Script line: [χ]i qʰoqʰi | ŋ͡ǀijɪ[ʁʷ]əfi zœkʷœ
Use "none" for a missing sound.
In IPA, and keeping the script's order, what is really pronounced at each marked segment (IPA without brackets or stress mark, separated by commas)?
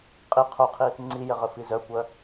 qʼ, ʁ